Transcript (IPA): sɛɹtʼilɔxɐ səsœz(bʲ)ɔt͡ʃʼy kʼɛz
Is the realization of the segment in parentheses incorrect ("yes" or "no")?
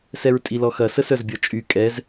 no